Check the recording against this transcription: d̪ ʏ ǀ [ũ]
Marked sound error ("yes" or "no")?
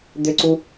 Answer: yes